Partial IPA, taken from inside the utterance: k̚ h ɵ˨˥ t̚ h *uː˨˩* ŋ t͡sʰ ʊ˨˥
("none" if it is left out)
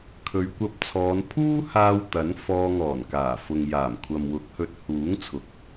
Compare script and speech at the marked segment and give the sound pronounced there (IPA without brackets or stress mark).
uː˨˥